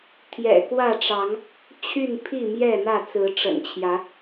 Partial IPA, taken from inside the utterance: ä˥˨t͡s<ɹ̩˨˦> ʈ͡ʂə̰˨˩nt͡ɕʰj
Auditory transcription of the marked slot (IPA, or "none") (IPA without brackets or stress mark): ɹ̩˨˦